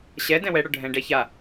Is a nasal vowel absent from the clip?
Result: no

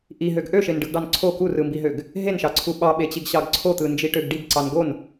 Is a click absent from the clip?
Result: no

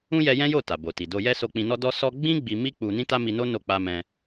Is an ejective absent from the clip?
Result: yes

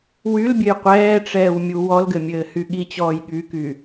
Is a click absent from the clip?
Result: yes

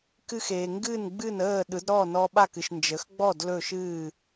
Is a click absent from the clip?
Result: yes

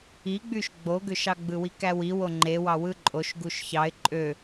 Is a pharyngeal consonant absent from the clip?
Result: yes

